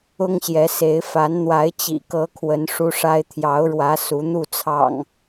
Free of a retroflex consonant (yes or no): no